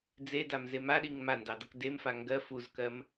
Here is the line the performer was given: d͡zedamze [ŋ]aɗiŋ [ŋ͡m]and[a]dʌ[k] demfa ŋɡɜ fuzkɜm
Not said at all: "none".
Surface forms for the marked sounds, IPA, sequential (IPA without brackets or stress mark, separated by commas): m, m, ɑ, k